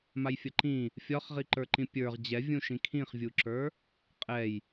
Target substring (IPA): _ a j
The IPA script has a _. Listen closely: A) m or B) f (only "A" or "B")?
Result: A